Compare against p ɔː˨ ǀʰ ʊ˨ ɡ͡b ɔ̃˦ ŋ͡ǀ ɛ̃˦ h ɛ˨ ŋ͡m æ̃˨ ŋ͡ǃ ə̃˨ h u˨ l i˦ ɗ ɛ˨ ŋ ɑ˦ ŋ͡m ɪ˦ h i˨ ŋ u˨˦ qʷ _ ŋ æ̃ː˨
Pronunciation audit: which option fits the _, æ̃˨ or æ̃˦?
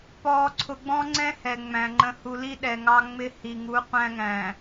æ̃˦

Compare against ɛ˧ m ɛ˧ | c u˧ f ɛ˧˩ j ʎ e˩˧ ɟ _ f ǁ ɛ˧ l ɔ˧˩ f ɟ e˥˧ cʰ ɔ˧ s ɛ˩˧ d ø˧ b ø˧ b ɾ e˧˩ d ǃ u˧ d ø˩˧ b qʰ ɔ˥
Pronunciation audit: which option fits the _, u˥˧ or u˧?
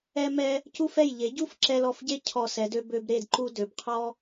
u˥˧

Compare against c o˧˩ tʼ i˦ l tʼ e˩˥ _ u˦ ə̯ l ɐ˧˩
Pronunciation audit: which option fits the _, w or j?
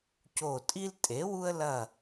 w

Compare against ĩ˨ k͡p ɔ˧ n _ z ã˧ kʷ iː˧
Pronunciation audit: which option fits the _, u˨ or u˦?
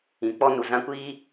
u˨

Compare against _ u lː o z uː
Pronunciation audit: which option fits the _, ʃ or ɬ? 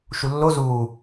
ʃ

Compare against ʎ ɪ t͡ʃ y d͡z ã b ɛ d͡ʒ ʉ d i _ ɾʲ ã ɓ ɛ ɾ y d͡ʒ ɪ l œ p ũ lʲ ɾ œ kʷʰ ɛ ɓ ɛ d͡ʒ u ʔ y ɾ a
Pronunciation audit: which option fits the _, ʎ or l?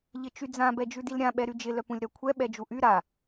l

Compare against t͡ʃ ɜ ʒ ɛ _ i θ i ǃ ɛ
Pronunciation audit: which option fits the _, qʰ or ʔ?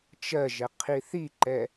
qʰ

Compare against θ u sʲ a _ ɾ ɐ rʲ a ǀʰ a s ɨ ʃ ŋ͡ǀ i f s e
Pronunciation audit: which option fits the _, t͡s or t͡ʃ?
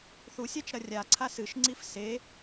t͡ʃ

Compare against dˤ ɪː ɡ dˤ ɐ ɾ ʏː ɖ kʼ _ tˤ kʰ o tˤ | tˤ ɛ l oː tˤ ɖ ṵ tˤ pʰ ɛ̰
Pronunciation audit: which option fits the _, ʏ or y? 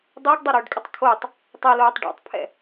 ʏ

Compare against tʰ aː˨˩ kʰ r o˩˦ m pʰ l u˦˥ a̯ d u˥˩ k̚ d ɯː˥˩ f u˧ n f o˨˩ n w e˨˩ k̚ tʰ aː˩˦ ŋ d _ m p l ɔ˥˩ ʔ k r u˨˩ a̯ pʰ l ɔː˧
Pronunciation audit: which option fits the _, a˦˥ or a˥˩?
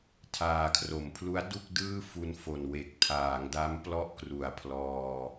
a˦˥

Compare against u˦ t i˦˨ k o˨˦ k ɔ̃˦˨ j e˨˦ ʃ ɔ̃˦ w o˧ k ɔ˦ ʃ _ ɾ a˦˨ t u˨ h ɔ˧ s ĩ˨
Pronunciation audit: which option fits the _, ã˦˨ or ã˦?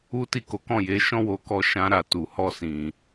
ã˦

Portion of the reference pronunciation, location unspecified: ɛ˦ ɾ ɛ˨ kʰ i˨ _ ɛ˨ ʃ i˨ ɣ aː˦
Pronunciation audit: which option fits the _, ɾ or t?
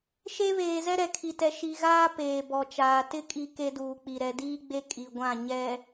t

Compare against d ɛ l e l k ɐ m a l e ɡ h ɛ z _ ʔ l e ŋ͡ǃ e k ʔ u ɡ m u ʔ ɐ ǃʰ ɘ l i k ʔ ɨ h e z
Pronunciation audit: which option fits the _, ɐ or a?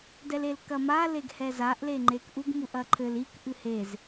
a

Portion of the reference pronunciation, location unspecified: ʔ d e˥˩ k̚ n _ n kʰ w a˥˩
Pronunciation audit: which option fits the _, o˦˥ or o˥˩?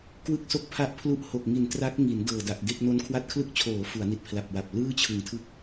o˦˥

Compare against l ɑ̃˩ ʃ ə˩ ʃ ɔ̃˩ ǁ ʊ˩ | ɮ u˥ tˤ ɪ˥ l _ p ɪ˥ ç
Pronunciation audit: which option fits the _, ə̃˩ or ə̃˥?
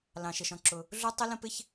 ə̃˥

